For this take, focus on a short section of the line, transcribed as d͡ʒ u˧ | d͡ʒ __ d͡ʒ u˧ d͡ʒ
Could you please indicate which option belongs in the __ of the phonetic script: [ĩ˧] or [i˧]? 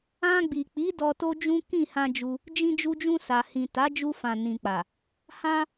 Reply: ĩ˧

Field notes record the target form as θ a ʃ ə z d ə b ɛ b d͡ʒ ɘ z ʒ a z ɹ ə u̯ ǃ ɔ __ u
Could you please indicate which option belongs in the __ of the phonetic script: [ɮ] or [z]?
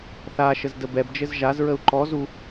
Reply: z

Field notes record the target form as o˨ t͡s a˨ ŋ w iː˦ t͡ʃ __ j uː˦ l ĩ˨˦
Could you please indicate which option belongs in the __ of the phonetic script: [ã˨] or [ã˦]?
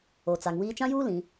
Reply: ã˦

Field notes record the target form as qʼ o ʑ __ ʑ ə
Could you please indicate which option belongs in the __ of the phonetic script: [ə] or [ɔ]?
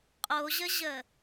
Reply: ə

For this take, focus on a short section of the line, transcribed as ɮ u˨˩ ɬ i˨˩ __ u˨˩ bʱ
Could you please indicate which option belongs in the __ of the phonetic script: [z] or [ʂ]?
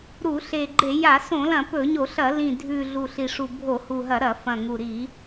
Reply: ʂ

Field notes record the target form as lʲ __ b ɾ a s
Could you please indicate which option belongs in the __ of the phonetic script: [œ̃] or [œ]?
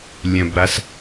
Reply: œ̃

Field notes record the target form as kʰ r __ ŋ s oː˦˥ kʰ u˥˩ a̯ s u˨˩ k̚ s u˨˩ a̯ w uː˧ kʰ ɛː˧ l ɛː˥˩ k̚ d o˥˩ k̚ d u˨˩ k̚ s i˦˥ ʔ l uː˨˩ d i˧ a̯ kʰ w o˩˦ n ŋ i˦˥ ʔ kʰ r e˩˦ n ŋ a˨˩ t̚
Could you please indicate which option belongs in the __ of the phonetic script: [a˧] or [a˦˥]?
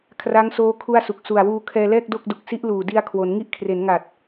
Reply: a˦˥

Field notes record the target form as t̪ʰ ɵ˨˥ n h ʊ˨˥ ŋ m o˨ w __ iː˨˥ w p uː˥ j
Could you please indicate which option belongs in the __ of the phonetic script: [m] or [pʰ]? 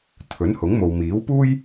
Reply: m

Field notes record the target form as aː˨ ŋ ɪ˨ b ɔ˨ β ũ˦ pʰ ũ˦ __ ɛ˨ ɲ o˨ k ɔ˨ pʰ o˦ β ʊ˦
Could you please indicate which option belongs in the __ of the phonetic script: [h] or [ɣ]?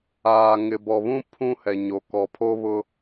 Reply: h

